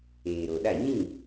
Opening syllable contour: low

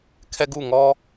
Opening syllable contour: high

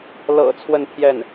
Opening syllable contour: low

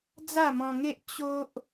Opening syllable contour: falling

